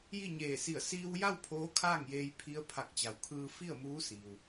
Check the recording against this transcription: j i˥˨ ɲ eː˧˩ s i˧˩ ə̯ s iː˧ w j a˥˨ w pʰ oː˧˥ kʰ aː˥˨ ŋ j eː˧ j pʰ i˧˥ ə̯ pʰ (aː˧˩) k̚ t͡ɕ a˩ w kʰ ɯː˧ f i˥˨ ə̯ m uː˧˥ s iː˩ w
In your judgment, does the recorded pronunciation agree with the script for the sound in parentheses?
no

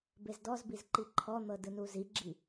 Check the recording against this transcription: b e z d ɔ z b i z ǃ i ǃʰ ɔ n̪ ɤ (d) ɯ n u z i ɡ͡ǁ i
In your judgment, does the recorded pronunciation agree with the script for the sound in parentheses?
yes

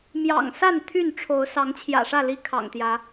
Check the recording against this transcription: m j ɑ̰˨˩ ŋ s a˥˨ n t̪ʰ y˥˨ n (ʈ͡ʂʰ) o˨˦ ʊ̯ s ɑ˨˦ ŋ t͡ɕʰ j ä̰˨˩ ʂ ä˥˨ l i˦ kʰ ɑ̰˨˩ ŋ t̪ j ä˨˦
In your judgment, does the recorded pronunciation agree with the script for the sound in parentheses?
yes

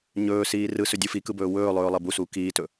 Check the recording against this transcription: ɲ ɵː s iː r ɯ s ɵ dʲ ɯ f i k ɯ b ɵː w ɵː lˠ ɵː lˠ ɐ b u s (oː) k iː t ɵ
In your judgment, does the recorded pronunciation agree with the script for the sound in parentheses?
no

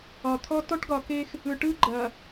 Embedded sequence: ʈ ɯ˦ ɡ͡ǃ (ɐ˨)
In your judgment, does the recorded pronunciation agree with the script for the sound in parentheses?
yes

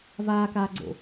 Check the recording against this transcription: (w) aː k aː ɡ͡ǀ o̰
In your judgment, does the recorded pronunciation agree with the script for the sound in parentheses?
no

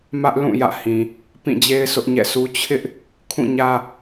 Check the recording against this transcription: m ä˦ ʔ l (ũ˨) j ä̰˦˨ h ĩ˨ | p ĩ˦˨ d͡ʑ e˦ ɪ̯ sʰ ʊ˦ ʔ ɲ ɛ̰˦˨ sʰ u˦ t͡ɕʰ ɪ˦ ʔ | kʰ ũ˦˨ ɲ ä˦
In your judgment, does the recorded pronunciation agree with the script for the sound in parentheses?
no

